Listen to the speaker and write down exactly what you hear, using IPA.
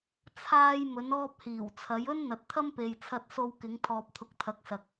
t͡sʰ aː˧ j m ɵ˨˧ n ɔː˧ p̚ h iː˨˩ w t͡sʰ ɐ˨˧ j ɵ˥ n n̪ ɐ˨ t̚ t̪ʰ ɐ˥ m p e˨ j t͡sʰ ɐ˧ t̚ s o˧ w k ɪ˨˧ ŋ t̪ʰ ɔː˨ p̚ t̪ʰ ʊ˨˥ k̚ t̪ʰ ɐ˨˥ k̚ s ɐ˨ k̚

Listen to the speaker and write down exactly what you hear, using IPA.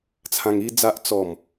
t͡sʰ ã˧ ŋ i˦ d͡z a˦ ʔ t͡s ɔ˨˩ m

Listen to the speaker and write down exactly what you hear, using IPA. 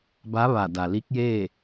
b a˧˥ ʋ a˧˩ d a˩ l i˧˥ k̚ j eː˥˨

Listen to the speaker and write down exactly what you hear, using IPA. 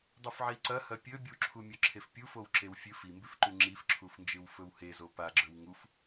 dˤ ʉ f ʕ i ǀ ɐ h ɐ pʲ ɵ bʲ u ǁʰ u mʲ ɵ ǁʰ e f pʲ u f o w ǁ e w fʲ ɨ f i m b ʉ f ǃ ʉ ŋ͡ǁ i f ǁʰ u f n d͡ʒ ɨ w f ɵ w h e z o p a ɡ͡ǁ ɵ w ŋ u f

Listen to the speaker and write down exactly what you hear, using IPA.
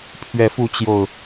pʰ ɥ ɛ˨˦ f u˨˦ t͡ɕ j o˨˩ ʊ̯

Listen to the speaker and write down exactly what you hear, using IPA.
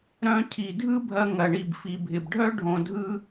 ɾ œ̃˧ cʰ i˩ dʱ ɯ˥ bʱ ɐ˧ ŋ ɐ˩ ɳ i˩ b f i˩ bʱ ɪ˩ b ɖʱ œ˥ ɖʱ õ˧ dʱ ɯ˥

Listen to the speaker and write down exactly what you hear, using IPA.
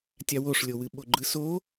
tʲ a w o ʂ lʲ o w ɨ ɓ o ɡ͡ǃ ɯ s o

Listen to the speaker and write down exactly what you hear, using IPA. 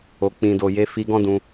o˨ k͡p ĩ˨ d o˨ j e˧ f i˧ ɡ ɔ̃˦ d ũ˧

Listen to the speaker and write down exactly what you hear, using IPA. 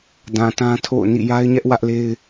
d ã˨ t ã˦ tʰ o̰˦˨ ʊ̯ n ḭ˦˨ j a˦ ɪ̯ ɲ ɛ˦ ʔ w ä˦ ʔ l e˦ ɪ̯

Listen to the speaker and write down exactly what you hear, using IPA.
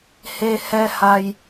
h e˧ h ɛ˧ h a˧ j

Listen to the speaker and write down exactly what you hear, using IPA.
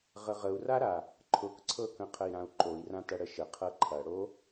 ʁ ə ʁ ə u̯ r a ɾ a | ǃʰ ʊ k ǀʰ ɤ k ə̃ qʰ ə i̯ ɾ ã u̯ ǃ o i̯ r ã t ɐ ɽ ə ʃ ə qʰ ɤ ǃʰ ɐ ɽ o

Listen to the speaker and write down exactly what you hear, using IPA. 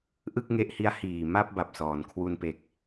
ʔ ɯ˥˩ k̚ ŋ e˦˥ ʔ h i˦˥ a̯ h iː˨˩ m a˥˩ p̚ b a˨˩ p̚ s ɔː˩˦ n kʰ w u˧ n p e˨˩ k̚

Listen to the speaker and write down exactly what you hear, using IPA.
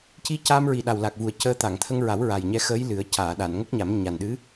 c i˧ c a˧ m ɹ i˨˩ ɗ a˨˩ w l a˨˩ k̚ v u˨˩ ə̯ c əː˧ t̪ a˨˩˨ ŋ t̪ʰ ə˧ ŋ ɹ a˨˩˦ w ɹ a˨˩ j ɲ ɛ˧ x əː˧˥ j l ɨ˨˩˦ ə̯ c aː˨˩˨ ɗ a˨˩˨ n ŋ ə˦˥ k̚ ɲ a˨˩˦ m ɲ a˨˩ n ɗ ɨ˧˥

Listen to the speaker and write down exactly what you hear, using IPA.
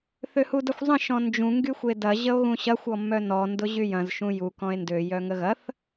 θ ø h u d ɐ xʷ zˤ ə̃ ʃ ɔ̃ n d͡ʒ ũ ŋ ɡ y xʷ e d ɐ ʑ ə o̯ ɣ ũ ɕ ɐ xʷ ɔ mː œ n ɔ n d ʊ ʑ y j ɐ̃ z ʃ ũ j u k ɔ̃ e̯ n d ø j œ ŋ ə ɣ ɐ θ

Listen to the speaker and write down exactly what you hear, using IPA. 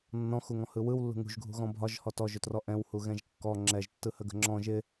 nː ɔ̃ x u ŋ ɔ̃ h ɯ w ɯ w lː ṳ ŋ ṳ ʒ ɡʱ ṳ ɣ ɔ̃ bʱ ɒ ʒ h ɔ t ɔ ʒ ɵ t r ɔ ʔ ɛ̃ w h u ɣ ɛ̃ ʒ kː ɔ ŋ͡ǁ ɛ ʒ tː ɯ h ə ɡ ə̤ ŋ͡ǁ ɔ̃ ʒ ɪ

